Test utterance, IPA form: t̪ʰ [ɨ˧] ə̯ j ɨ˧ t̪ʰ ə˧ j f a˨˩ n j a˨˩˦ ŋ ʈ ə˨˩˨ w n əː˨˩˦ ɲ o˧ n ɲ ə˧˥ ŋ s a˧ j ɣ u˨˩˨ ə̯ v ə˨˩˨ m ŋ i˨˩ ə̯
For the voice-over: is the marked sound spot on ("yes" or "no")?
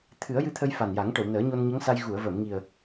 no